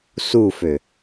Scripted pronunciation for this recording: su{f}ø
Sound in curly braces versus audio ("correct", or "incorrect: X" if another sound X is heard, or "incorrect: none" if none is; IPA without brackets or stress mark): correct